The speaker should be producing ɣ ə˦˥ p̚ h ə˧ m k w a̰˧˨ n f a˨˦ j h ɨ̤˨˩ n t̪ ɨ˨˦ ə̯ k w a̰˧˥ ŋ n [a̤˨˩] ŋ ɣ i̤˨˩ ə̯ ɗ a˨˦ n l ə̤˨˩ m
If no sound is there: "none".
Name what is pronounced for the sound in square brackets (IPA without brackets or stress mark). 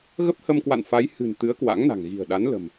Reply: a̤˨˩